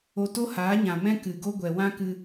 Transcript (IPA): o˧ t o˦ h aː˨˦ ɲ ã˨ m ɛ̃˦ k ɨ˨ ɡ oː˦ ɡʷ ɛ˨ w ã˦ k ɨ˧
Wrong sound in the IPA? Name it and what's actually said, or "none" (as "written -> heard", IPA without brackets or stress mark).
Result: oː˦ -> o˦